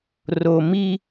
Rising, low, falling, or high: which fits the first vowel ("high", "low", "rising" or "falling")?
low